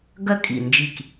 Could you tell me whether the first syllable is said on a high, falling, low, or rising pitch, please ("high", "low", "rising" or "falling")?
high